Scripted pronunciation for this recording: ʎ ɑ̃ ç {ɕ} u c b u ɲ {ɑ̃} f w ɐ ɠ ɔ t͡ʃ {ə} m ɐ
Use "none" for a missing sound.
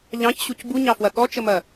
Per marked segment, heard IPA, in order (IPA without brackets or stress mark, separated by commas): ɕ, ɑ, ə